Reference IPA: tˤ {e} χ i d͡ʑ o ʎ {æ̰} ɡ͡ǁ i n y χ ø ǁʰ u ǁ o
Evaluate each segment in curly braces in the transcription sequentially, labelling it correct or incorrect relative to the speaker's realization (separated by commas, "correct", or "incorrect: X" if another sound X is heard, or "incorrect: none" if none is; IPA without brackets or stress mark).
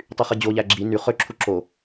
incorrect: y, incorrect: æ